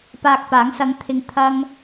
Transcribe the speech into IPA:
p aː˧ k̚ p aː˨˥ ŋ s ɐ˨˧ ŋ t̪ʰ ɪ˨˧ ŋ t̪ʰ ɐ˥ ŋ

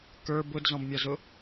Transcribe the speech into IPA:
k ə˞ b ʊ d z ɔ̃ b mʲ ɒ z ʊ

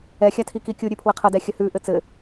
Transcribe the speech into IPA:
ɛ xʲ a tʰ i k i kʲ u ɾʲ ʉ pʰ w ɘ qʰ ə d ɛ xʲ ə h ʉ ʔ ɘ t͡s ɘ

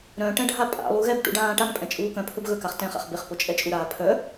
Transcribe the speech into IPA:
ɾ œ̃ ʈ ɛ̃ ɖʱ a pʼ a̰ lˠ u ɣ ɛ b ʈ ṵ ɖ ãː ʈ a ŋ pʼ ɛ̃ t͡ʃʼ uː k œ̃ pʰ ɵ b ɣ ɵ k a χ t ɛ̃ χ a̰ χ b ɪ χ p o t͡ʃʼ ɛ t͡ʃʼ u ɾ aː pʰ œ

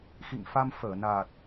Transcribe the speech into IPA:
x ḭ˧˨ ŋ f a˧ m f əː˧˩ n a˨˩ t̚

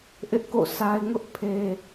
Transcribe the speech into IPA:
ʔ ɪ˦ ʔ k o̰˦˨ sʰ a˦ ɪ̯ ŋ ʊ˦ ʔ pʰ e˦

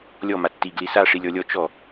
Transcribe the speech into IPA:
lʲ ɔ m a tː i ɡ l i s a ʂ i lʲ ɔ lʲ ɔ t͡ʃ ɔ

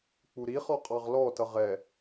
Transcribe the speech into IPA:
k͡p u ɾ i χ ɔ qʼ ɑ ʁ l ɔ t ʌ ʁ ɛ

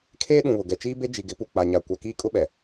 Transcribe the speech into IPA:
kʰ eː˦ ɗ ũ˨ β ʊ˨ ɡ ɛ˨ t͡ʃ iː˦ b e˦ d͡ʒ i˨ ɡ ɪ˨˦ p u˨ k͡p a˨ ɲ a˨ kʷ a˨ k iː˦ kʼ ʊ˦ ɓ ɛ˨

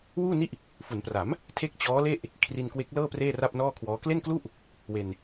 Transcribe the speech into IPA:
w uː˥˩ n i˦˥ ʔ | f u˩˦ n p r a˩˦ m | tʰ e˥˩ k̚ t͡ɕ ɔː˦˥ l e˥˩ ʔ | kʰ r i˧ n k w e˦˥ k̚ l ɤː˥˩ p r eː˥˩ r a˥˩ p̚ n ɔː˥˩ kʰ w ɔː˦˥ k l e˥˩ n k l u˥˩ ʔ | w e˧ n

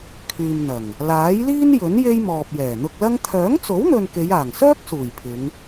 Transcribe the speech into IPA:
kʰ yː˨ m n̪ ɐ˨˩ ŋ | l aː˨˥ j l iː˥ n j ɵ˨˥ n j e˥ j m ɔː˨ p̚ j ɛː˨˩ n̪ ʊ˧ k̚ l ɐ˥ ŋ t̪ʰ œː˨˥ ŋ t͡s o˨˥ w n̪ ɵ˨ n k e˨˧ j aː˨˩ ŋ s œː˥ k̚ s uː˨˩ j pʰ ɪ˨˧ ŋ

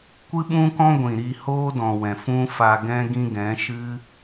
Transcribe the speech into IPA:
kʷ ɨ˦ ɓ ũ˦ k ɔ̃˦ ɡʷ ĩ˨ ɾ i˧ h oː˦ d ɔ̃˨ w ɛ̃˨ f ũ˦ f a˧ ɡ ɛ̃˦ ɡ ĩ˦ ɡ ɛ̃˨˦ ʃ ɨ˦

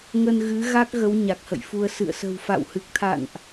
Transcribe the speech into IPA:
ŋ ə˧ n ɣ ɨ˨˦ ɣ a˦˥ k̚ ɣ ə˨˦ w ɲ a˨˩ k̚ h ə̰˧˨ j f u˧ ə̯ s ɨ̰˧˨ ə̯ s ə̤˨˩ w f a̰˧˨ w h ɨ˨˩ k̚ t̪ʰ a̰˧˨ n ʔ

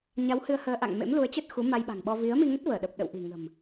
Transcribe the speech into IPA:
ɲ a˨˦ w h ɨ˧ ə̯ h əː˧ ʔ a̰˧˨ ŋ m ḛ˧˥ m l u˨˦ ə̯ t͡ɕ ə˦˥ t̚ x u˨˦ m a˧ j ɓ a̤˨˩ ŋ ɓ ɔ˧ v i˨˦ ə̯ m i˧ ŋ ə˦˥ t̚ v əː˧˩ ɗ ə˨˩ p̚ ɗ ə̰˧˨ w ʔ i̤˨˩ ŋ ə̤˨˩ m

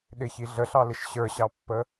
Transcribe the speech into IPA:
ɗ ɪ ç i ɮ ə ɬ ɑ l ɪ ʃ ɕ ə˞ ɕ ɑ pː ə

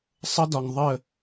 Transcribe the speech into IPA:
sˤ ə˦ d ɒ˨ ŋ ðˤ ə˦˨

